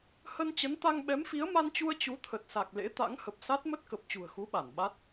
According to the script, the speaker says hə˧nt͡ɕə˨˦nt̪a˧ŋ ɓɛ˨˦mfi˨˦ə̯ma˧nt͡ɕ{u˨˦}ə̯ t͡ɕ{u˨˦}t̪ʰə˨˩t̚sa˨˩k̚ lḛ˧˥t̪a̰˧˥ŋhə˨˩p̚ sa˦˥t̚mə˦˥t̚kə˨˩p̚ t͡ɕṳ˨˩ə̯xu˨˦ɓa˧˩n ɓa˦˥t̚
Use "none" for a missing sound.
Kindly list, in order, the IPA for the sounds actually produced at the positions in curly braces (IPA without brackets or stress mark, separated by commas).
u˧, u˨˦